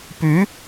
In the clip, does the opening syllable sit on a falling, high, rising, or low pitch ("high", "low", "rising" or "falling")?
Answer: rising